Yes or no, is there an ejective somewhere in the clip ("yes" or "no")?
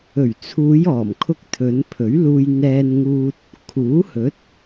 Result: no